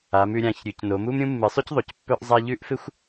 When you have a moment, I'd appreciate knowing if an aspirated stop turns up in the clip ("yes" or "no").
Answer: no